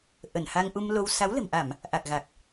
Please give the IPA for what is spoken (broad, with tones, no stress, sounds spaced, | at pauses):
ʔ ə˧˩ n h a˧ ŋ ʔ u˧ m l o˧ w s a˨˦ w l ə̤˨˩ m ʔ a˧˩˨ m | ʔ a˨˩ k̚ ɣ a˨˩ k̚